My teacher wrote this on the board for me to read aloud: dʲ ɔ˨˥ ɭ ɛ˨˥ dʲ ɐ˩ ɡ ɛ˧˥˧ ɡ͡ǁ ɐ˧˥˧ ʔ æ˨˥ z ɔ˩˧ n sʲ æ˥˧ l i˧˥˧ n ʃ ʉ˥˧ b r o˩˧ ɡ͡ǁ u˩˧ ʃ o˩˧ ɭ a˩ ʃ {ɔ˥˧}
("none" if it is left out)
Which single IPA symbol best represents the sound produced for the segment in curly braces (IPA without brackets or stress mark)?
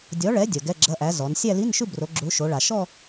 ɔ˥˧